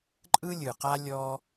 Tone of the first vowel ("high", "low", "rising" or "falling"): high